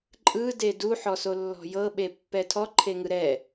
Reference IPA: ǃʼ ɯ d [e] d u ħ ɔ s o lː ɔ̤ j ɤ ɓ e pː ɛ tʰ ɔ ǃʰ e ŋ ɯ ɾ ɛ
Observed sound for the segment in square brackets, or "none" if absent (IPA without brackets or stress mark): e